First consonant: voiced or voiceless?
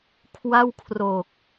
voiceless